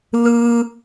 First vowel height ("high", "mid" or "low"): high